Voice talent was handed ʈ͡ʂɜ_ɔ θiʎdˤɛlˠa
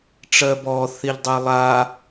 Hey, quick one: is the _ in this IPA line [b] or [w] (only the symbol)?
b